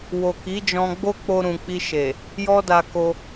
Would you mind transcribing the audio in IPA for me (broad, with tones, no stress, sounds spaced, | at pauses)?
w o˨ k i˨˦ d͡ʒ ɔ̃˧ ɡ͡b o˦ k͡p o˧ ɾ ũ˨ k͡p i˧ ʃ e˨ | j ɔ˦ d a˧ k o˧